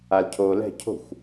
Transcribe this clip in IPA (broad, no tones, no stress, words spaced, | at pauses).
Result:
alcʰoːlɛ̤ cʰo̤xʷ